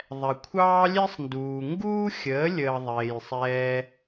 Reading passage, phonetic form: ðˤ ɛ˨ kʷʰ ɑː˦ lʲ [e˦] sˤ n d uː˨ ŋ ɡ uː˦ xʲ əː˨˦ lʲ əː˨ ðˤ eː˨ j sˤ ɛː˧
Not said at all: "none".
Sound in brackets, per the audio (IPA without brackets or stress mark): e˦